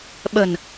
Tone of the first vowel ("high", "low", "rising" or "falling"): low